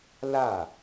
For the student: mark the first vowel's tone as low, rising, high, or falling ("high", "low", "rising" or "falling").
falling